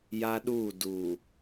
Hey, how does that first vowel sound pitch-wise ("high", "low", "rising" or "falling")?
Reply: high